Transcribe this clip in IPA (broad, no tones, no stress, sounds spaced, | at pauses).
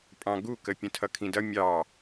pʼ ɑ̃ ɡ u k ə pʲ ə̃ tʰ ʌ kʰ ĩ d ʌ mʲ ɑ